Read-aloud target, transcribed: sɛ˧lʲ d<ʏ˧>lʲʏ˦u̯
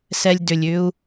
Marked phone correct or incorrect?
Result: correct